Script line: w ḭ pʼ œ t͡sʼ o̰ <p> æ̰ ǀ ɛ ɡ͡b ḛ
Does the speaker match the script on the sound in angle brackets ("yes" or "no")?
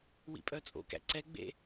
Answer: no